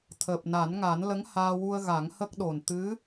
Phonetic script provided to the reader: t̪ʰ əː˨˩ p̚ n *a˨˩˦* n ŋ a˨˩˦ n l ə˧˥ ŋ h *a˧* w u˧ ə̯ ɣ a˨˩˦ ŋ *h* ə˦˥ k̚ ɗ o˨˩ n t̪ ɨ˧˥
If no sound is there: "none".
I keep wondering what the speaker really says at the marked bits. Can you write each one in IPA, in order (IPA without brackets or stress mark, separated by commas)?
a˨˩˦, aː˧, h